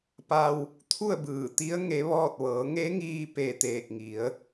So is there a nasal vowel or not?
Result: no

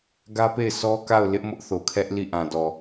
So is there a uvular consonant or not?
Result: no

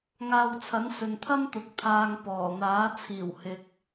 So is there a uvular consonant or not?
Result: no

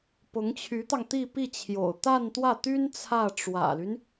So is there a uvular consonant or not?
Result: no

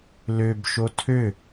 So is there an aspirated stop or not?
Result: yes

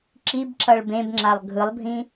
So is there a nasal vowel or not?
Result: yes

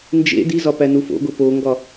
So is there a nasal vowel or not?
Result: no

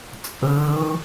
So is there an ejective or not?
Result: yes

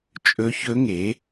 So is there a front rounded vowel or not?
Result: no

